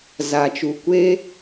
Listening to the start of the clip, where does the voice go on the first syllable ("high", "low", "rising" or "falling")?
low